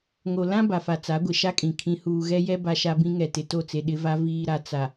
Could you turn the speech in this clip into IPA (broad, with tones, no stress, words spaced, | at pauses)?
ŋo˨ lã˦ ba˨fa˨ t͡sa˨˦ɡʷɪ˨ʃa˦kʼĩ˨ kʰĩ˨huː˨ɣɛ˦jɛ˦ ba˦ʃa˦bĩ˦ ŋɛ˨tɪ˨to˦˨t͡se˨ ɗɪ˦va˦ viː˨ɾa˨ t͡sa˨